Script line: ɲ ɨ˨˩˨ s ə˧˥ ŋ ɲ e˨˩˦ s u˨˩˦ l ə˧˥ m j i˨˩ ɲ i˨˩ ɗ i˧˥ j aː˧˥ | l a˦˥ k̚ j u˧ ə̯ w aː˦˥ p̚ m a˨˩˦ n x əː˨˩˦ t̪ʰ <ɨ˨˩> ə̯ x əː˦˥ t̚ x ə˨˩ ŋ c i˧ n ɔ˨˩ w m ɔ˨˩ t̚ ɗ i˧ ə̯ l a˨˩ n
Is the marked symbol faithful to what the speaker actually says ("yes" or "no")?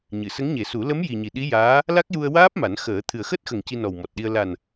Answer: yes